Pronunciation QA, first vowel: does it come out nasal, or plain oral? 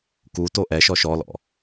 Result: oral